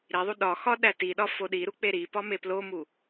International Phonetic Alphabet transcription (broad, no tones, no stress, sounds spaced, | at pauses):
ɾ i ðˤ u ɗ ɒ x ɒ ɗ æ t i ɗ ɒ f o ɗ i ɾ u k͡p e ɾ i p ɒ m e p l o m u